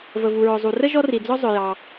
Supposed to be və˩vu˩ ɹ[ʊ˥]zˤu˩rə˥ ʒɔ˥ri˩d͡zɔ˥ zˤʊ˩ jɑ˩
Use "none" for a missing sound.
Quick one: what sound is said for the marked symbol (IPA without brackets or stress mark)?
ʊ˩